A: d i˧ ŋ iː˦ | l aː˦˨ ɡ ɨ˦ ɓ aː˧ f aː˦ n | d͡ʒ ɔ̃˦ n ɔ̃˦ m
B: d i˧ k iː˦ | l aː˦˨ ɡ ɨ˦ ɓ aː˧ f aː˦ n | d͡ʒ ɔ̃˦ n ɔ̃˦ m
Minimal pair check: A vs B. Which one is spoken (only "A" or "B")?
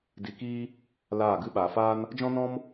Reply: B